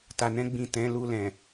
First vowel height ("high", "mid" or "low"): low